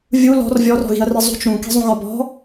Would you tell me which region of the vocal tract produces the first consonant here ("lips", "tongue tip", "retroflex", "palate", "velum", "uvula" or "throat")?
lips